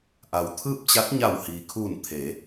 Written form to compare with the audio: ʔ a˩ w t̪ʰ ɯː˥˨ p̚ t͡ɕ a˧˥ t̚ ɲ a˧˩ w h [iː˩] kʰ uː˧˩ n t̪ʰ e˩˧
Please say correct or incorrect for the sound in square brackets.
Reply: correct